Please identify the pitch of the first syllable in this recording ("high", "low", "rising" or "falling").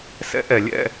rising